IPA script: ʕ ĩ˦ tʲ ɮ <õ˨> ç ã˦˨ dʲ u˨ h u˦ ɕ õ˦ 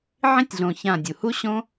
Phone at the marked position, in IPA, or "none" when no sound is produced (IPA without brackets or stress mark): õ˨